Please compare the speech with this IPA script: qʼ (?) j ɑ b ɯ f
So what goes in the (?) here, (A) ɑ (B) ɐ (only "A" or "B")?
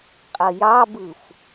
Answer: B